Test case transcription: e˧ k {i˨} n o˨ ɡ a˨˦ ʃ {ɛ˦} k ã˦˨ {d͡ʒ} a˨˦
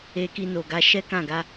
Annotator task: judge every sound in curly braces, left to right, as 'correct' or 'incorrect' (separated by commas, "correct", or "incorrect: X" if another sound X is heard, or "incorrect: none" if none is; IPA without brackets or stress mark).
incorrect: i˧, correct, incorrect: ɡ